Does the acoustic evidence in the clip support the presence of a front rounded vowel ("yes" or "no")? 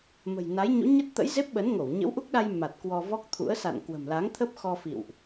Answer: no